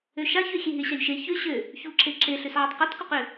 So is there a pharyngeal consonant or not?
yes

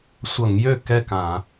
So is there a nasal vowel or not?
yes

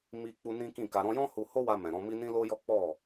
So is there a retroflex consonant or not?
no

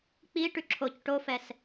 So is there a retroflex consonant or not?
yes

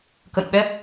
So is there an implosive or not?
yes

